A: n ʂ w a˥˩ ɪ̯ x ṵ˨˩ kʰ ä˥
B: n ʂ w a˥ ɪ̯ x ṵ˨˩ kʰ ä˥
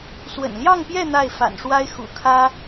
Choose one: B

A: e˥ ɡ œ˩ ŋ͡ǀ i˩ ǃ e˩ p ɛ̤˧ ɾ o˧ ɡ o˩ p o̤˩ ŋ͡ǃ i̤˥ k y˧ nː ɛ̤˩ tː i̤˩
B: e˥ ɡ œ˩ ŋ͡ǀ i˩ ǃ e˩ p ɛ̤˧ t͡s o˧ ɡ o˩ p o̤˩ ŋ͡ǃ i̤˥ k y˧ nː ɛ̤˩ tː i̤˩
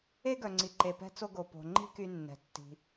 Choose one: B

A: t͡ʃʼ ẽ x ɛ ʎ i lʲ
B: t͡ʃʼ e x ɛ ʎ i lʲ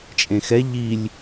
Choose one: A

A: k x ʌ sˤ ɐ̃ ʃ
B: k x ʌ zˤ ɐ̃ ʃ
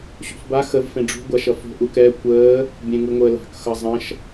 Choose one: B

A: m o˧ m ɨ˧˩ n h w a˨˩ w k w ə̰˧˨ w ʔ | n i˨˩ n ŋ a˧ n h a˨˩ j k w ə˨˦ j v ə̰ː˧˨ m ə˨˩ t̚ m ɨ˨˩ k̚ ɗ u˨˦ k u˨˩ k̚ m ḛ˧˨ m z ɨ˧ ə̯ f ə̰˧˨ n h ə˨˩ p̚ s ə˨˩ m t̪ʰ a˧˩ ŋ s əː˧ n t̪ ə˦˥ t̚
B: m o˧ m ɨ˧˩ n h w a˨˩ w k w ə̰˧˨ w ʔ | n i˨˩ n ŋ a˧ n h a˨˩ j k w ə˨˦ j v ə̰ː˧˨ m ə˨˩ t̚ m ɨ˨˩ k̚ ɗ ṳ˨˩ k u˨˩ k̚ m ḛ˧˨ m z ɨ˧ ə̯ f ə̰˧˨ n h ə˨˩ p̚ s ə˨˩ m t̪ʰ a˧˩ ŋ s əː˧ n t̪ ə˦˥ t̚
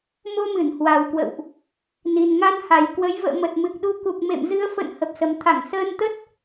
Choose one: A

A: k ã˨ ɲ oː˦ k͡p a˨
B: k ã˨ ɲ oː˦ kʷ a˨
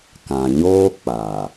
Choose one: A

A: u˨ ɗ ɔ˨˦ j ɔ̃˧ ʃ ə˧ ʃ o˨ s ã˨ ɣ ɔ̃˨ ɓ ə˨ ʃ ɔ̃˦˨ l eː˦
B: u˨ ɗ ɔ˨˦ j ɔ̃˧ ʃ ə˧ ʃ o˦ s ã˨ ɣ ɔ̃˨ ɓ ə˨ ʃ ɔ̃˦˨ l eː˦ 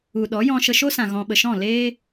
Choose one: B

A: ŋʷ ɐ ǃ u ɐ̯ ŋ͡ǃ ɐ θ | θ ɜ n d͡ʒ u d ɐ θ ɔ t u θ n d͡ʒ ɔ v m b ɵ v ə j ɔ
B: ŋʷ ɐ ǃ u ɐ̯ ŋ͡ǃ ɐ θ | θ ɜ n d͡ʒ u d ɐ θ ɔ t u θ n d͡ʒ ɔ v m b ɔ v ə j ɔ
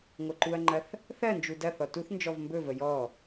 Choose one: A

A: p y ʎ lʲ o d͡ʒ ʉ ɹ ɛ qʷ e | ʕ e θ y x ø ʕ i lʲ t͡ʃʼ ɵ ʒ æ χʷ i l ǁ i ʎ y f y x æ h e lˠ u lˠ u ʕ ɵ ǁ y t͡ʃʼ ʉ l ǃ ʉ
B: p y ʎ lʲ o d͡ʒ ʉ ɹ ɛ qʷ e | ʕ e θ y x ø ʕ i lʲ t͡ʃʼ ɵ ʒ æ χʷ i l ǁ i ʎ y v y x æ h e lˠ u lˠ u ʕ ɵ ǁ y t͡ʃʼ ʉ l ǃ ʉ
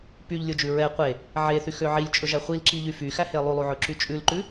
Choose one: A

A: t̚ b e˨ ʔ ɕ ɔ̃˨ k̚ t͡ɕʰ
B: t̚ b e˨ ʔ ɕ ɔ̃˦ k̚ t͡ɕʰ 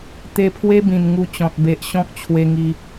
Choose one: B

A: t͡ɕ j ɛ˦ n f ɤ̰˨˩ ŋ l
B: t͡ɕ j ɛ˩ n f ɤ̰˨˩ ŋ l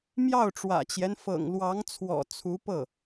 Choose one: A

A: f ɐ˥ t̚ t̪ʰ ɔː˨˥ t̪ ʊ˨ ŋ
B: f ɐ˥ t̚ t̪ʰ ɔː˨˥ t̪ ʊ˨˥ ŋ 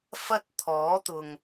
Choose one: A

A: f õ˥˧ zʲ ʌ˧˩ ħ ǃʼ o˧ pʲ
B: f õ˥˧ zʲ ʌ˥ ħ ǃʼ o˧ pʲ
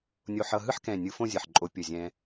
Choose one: A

